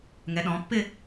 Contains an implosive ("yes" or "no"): yes